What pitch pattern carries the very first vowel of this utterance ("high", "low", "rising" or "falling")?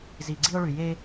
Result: low